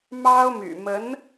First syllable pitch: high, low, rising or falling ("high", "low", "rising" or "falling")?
high